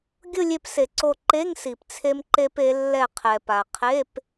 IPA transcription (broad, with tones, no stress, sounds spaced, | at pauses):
ɡʲ ʊ˥˧ lʲ e˧ p s e˩ ǀ o˧˩ ǃ e˧˥˧ ŋ s i˩ p t͡sʰ e˧ m ǃ e˧ p e˩˧ lː ɛ˧˩ qʰ ɛ˩ p a˩ qʰ e˧˥˧ p